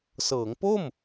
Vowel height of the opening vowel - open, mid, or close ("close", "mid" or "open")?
mid